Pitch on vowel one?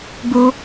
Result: high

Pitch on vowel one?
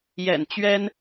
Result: low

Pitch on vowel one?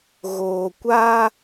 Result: low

